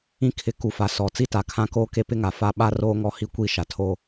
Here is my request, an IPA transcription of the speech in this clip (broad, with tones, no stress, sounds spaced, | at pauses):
ĩ˦ kʰ ɪ˨˦ k u˨ f a˨ s ɔ˨ t͡s i˦ t a˨ kʰ ã˦ k oː˦ k e˦ p ɪ˦ ŋ a˨ f a˦ ɓ a˦ r oː˦ ŋ ɔ˦ h i˦ kʷ i˦˨ ʃ a˨ tʰ oː˦